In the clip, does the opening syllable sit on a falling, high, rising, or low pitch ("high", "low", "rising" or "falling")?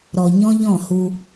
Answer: low